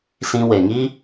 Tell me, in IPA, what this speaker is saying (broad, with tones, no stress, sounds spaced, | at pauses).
s ĩ˧ w e˨ ŋ i˦